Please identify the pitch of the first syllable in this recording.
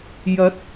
rising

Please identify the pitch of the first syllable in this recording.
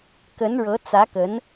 rising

